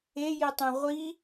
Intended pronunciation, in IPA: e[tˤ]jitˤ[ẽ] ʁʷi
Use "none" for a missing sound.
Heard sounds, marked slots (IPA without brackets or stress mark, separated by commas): none, ẽ